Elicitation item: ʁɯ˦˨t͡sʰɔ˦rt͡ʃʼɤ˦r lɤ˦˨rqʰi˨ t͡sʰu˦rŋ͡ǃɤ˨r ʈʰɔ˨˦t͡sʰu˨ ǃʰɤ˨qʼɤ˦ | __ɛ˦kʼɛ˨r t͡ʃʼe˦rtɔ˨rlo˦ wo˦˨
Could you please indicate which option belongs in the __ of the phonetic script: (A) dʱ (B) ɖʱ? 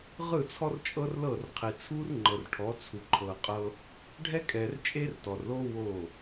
B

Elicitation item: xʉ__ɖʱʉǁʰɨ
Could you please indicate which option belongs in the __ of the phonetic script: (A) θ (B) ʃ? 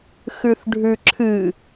A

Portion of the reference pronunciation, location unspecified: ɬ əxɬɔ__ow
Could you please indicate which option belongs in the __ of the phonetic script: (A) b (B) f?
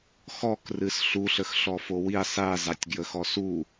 B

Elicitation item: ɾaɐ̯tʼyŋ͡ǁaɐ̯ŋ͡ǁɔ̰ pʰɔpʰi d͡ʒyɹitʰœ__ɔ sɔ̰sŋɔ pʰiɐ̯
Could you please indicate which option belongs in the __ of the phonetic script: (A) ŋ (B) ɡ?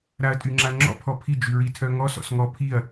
A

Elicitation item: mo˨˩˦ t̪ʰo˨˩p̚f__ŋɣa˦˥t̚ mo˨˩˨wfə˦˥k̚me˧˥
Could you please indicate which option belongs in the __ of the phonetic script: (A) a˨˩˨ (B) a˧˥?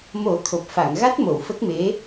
A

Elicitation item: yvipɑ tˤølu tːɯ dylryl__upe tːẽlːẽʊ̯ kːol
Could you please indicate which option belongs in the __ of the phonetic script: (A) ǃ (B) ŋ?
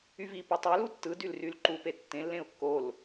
A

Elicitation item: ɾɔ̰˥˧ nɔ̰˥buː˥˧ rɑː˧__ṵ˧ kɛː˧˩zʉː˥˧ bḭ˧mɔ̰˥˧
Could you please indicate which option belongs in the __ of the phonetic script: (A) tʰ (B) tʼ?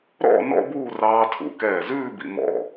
A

